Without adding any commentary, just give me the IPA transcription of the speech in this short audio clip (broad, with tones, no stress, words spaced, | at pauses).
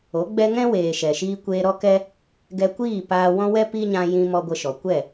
o˨˦ɡ͡bɛ˦ ŋɛ̃˦weː˨ ʃɛ˨ʃiː˧kʷeː˧ ɾɔ˦kɛ˦ | ɡɛ˧kʷiː˦˨ paː˧wɔ̃˦ wɛ˦ pi˦ ɲã˦ jĩ˧mɔ˧ ɡʷə˧ʃɔ˨ kʷɛ˦˨